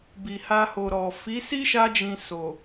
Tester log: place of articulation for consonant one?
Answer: labial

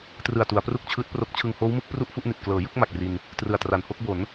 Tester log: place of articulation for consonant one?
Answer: alveolar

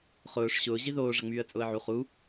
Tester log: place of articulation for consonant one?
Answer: uvular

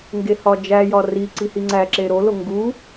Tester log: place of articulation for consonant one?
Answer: velar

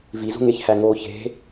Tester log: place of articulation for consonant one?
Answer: labial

